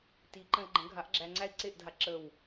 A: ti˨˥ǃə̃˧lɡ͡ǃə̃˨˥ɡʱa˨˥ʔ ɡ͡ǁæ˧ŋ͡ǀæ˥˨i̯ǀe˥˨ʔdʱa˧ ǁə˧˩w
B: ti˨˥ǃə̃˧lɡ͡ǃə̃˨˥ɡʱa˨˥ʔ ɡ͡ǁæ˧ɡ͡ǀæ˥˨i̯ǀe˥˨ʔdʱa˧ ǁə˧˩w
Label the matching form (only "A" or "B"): A